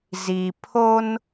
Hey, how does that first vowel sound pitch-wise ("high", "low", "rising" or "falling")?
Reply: low